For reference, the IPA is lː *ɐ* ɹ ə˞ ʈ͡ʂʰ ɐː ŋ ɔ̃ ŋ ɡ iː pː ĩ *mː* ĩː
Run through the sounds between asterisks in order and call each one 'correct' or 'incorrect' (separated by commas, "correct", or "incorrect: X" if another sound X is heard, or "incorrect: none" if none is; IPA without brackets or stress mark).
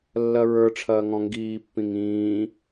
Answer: correct, incorrect: ŋ